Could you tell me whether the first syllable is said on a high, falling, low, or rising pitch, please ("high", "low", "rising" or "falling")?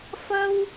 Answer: high